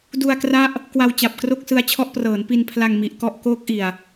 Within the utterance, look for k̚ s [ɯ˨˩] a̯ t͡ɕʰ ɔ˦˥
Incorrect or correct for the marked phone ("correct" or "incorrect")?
incorrect